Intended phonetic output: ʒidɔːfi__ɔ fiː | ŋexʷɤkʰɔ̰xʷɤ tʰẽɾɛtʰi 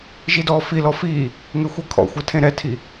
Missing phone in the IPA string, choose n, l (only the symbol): l